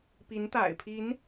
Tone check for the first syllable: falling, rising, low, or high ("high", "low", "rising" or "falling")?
rising